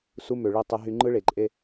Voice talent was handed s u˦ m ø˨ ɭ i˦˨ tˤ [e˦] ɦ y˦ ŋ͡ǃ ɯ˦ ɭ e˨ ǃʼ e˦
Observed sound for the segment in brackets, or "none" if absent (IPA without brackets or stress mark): e˦